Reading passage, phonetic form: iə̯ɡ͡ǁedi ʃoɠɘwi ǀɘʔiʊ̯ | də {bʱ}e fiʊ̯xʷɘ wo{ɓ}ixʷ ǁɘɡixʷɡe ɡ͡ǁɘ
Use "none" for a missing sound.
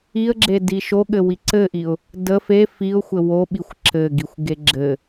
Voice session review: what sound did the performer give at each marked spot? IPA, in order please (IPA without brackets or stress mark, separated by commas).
f, ɓ